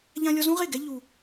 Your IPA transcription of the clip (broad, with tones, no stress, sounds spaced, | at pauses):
ʎ ã˧ lʲ ɔ˧ z ũ˦ ʁ e˦˨ ɡ ɛ˦ ʎ u˧